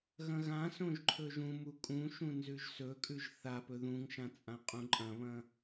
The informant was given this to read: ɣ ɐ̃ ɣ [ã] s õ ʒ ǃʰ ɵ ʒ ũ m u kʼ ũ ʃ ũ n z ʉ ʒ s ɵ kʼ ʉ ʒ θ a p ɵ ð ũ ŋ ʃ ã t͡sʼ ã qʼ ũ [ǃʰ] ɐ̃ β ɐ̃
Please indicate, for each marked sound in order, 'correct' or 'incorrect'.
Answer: correct, incorrect

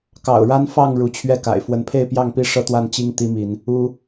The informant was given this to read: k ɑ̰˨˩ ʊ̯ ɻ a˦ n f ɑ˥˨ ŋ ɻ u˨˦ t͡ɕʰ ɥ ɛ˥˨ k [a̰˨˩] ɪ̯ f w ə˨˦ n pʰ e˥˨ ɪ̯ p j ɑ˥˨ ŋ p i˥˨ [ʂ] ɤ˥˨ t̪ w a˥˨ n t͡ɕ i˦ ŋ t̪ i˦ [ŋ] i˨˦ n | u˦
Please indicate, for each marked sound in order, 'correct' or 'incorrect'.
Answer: correct, correct, incorrect

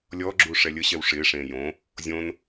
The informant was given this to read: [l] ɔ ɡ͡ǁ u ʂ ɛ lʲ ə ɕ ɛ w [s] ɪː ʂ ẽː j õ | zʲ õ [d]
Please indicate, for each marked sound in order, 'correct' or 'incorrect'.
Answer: incorrect, incorrect, incorrect

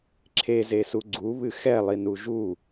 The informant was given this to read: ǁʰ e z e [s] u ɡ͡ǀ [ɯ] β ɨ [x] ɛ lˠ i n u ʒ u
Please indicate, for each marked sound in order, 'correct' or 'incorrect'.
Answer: correct, incorrect, correct

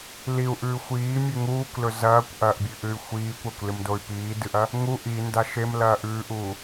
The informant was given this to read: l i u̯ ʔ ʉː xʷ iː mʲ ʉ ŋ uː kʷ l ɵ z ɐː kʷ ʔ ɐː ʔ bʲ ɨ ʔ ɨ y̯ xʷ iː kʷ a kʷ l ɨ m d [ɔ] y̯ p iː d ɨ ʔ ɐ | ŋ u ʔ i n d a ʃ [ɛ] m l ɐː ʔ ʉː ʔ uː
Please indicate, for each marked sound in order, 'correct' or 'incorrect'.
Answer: incorrect, incorrect

